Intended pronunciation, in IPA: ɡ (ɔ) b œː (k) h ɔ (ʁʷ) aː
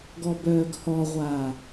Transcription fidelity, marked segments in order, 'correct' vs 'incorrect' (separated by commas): correct, incorrect, correct